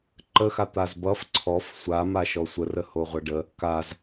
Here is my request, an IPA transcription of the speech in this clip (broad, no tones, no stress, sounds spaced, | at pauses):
ǃ ə x a t̪ a z b ʌ f ǀʰ ɔ f sʷ a m a ʃ ɔ sʷ ə r ə h o ʁʷ ʌ ɖ ə | k a z